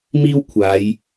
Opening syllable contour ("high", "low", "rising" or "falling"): high